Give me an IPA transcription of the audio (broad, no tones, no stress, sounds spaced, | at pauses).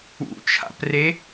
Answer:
ṵ t͡ʃʰ a̰ p r e